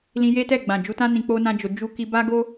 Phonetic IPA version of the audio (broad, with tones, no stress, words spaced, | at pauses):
lĩ˧je˦tɛ˦˨ ɡ͡bã˨d͡ʒu˧tã˦ nĩ˧k͡po˦nã˦d͡ʒo˧ d͡ʒu˧ki˧ba˦ ɡo˦